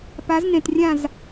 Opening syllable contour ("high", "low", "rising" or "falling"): rising